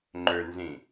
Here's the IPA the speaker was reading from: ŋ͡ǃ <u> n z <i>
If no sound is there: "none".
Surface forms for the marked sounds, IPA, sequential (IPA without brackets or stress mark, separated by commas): ø, ĩ